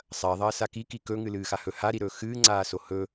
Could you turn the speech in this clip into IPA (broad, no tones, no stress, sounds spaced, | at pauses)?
sˤ ɐː ðˤ ɐː s a k i k i k ɵ ŋ ɨ l ɨː x a h ɵ h a ɾ i ɾ ɵː x ɨː ŋ͡ǀ aː s o h ɵ